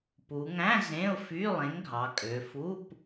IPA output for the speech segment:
pu˩˧ŋæ̃˧˥˧ zẽ˧˥˧ʊ̯fy˧˥˧lˠẽ˨˥ŋ ɡʱɑ˩˧kʼø˩˧fu˧˥˧p

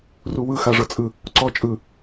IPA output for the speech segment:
ruwɯ xaʐɤt͡sʼɯ | ǀɔ t͡ʃʼɯ

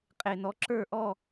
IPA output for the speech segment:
qʼe˨nɔ˨˦ ǁə˞˥˨ʔɔ˥˨

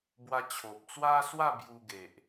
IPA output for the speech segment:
bwa˧t͡ɕʰo˨p̚t͡swa˦swa˥˧ bju˧ɡe˨ʔ

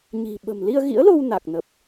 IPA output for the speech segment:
ɲi̤˨˩ɓə̤˨˩m li˧ə̯ɣḭ˧˥ə̯lo˧w na˨˩k̚nə˨˩p̚

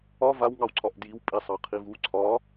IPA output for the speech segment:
ɒ vawŋɑwǀʰɒʔ djiwpʼisˤɑ qʰivu ǀʰɒ

